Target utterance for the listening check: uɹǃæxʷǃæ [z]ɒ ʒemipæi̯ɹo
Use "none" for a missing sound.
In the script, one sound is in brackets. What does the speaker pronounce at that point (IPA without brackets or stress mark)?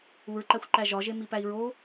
ʒ